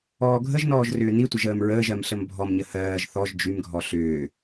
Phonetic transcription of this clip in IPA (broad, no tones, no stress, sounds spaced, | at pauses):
ɔː ɡʱ ə ʒ n ɔː ʒ r ʏː n i tʷ ə ʒ əː m ɹ əː ʒ ɜ m ɬ ə m bʱ ɔ m ɲ ə h ɜː ʒ θ ɔ ʒ d͡ʒ y m ɡʱ ɔ ɬ ʏː